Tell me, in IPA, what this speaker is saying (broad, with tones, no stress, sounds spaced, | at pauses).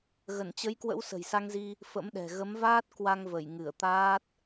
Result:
ɣ ə˧˩ n t͡ɕ ə˨˦ j k w ə̰˧˥ w s ə̤˨˩ j s a˧ ŋ z i˧ | f ə̰˧˥ m ɗ ɛ̤˨˩ ɣ ə˨˦ m v aː˦˥ t̚ k w a˧ ŋ v ə˧˩ j ŋ ɨ˧˩ ə̯ t̪ aː˦˥ t̚